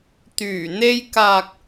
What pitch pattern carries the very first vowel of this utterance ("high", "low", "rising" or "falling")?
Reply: low